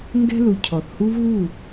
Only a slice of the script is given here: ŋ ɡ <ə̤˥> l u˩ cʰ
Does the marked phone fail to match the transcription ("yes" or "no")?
yes